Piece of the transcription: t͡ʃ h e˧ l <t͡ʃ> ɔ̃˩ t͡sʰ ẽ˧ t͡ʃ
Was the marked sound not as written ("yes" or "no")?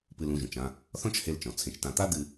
no